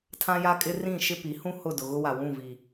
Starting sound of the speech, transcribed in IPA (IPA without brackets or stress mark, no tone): tʰ